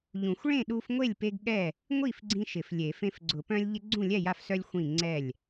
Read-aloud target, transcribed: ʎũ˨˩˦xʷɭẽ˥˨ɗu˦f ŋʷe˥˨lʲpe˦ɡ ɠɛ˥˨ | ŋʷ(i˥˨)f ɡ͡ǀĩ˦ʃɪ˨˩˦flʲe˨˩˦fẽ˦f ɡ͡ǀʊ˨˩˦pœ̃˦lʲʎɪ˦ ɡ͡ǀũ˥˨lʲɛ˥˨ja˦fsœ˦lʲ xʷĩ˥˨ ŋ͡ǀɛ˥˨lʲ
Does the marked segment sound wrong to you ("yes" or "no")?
no